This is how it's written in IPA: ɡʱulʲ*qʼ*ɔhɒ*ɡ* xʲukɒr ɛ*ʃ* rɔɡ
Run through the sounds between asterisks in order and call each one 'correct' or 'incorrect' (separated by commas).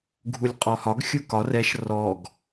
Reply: correct, correct, correct